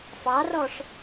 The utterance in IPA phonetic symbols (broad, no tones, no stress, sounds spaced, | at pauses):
f ɑ r ɔ ʂ